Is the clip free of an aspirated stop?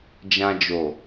yes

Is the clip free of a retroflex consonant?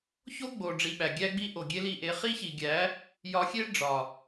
no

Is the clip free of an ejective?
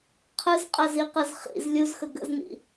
no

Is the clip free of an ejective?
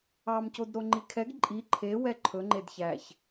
no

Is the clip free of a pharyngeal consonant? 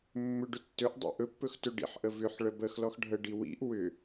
no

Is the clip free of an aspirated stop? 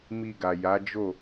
yes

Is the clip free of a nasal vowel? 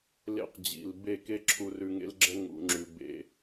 yes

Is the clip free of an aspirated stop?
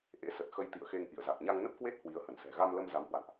yes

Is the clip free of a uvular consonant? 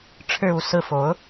yes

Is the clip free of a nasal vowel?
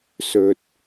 yes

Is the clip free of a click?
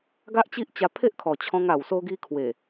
yes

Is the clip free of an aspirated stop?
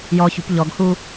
yes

